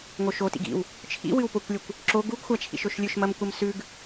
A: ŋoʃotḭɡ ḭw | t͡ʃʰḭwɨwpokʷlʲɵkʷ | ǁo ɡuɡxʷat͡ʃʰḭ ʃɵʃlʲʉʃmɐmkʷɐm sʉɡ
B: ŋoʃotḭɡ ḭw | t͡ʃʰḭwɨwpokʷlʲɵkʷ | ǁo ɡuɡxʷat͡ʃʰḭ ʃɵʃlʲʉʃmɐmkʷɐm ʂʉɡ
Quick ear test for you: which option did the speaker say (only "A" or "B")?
A